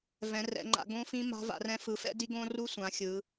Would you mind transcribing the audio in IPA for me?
vɛ̃˨˦rɛ̰˨˦ŋ͡ǃa̰˨˦ ɡõ˦˥fĩ˦˥ ma̤˦˥va̰˨˦rɛ̃˦˥ fɯ˨˦fɛ̰˦˥di˦˥ ɡõ˦˥ru˦˥ sʷã˨˦xʲɯ˨˦

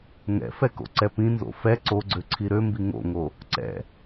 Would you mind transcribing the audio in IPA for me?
ŋɛ̰fɛ ko̰ǀɛpĩnzo̰ fɛ ǀoɡ͡ǀø ǀʰiɾømbi ŋo̰ŋo | ǀɛ̰

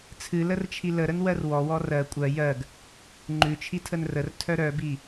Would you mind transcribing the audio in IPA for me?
t͡sʰɨlərt͡ʃʰi ləɾənwɜr wɔwɔ rɜ kʷʼɜ jɜɡ | ŋ͡ǃʉt͡ʃʰitʰən rərtʰœ ɾœbi

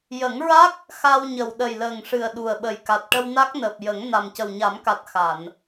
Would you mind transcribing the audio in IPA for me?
jə˨˩˦ŋɹa˦˥k̚ | xa˧wɲə˨˩w ɗə˨˩jləː˨˩ŋʂɨ˨˩ə̯ ɗu˨˩ə̯ɓə˨˩jka˨˩t̚ ʈə˧wna˦˥k̚nəː˨˩p̚ jə˨˩˦ŋ na˨˩mcə˨˩wɲa˨˩˦mka˨˩t̚ xa˨˩˨n

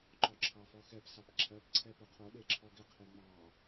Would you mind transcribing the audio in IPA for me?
ǃɔǁʰɑfɔxɛp sɑpǁʰɜp ǀʰɛpoqʰo ɗeǁʰɔɡɪ qʰeŋ͡mɑ

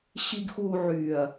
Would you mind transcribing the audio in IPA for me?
ɕi˨ɡxuː˨ ʕyː˨ɐ̯

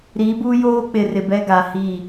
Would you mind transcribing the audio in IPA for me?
ɾiː˨˦buː˦joː˦k͡pɪ˨ rɪ˨bɛ˦ɡa˨ hiː˦˨

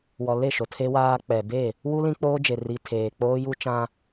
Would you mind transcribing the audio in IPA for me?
wɔ˨le˦˨ʃo˨ tʰe˦waː˦ k͡pɛ˨be˦˨ | wu˦ lĩ˦k͡poː˦d͡ʒe˨ ri˨ tʰeː˨k͡poː˦ju˦t͡ʃã˦

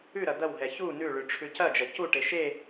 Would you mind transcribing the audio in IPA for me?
ʉɾɐ d̪ɐwɦɛ çu nʉɭʉ ʈ͡ʂʰʉcɐd͡ʒɐ cuʈe ʃe

